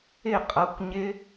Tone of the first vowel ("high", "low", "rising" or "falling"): falling